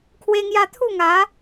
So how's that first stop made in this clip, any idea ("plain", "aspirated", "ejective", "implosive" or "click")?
aspirated